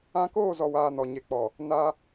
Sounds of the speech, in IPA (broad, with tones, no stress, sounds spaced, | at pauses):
ã˦ k oː˦˨ z ɔ˨ w aː˨ n ɔ˨ ɲ e˨ k͡p ɔ˨ | n a˦